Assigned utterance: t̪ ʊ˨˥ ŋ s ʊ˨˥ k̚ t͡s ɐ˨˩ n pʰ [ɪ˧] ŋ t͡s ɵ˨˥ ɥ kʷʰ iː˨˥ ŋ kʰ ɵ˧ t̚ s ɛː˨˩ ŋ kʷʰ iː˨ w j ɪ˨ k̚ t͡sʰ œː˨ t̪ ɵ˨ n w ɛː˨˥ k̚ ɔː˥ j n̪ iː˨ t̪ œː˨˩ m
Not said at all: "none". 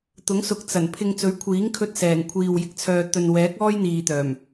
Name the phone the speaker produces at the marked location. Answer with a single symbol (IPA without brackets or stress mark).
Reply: ɪ˧